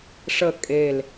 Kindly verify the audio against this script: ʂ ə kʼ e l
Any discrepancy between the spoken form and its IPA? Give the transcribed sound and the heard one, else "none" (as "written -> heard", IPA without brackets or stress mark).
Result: none